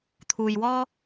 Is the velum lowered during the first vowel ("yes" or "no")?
no